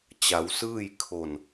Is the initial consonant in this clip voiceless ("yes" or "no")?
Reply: yes